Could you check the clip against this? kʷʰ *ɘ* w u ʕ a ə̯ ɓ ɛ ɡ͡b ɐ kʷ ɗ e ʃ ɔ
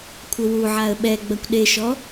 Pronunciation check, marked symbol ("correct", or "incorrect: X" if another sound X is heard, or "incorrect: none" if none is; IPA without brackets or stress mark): correct